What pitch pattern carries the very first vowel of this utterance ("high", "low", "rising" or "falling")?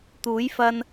rising